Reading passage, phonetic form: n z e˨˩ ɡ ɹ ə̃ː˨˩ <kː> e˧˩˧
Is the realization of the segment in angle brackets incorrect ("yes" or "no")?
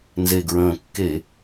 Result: no